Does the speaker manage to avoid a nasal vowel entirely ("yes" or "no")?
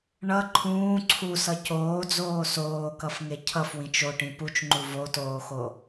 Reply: no